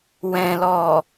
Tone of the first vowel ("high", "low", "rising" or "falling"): low